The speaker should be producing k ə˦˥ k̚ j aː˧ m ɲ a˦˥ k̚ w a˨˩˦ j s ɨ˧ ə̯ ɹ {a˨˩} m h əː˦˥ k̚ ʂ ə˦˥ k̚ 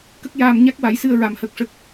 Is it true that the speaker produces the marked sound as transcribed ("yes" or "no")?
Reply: no